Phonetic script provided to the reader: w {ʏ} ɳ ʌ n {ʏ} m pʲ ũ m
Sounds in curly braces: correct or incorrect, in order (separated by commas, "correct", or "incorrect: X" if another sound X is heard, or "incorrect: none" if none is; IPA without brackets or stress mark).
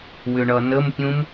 correct, incorrect: ə